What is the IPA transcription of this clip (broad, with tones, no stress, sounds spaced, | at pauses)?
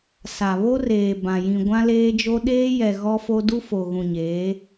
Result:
s a˨ β o˦ r eː˨ b ã˨ j ĩ˨ ɡʷ ã˦ l eː˦ d͡ʒ o˦ ɗ eː˦ j ɛ˨ ɣ ɔ˦ f o˦ d u˦ f o˨ ɣ ũ˨ ɲ eː˨˦